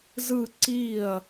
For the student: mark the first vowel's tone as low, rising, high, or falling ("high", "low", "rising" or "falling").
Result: falling